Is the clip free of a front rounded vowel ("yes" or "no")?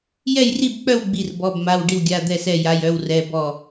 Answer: no